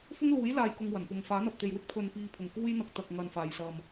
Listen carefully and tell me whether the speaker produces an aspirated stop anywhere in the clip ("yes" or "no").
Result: yes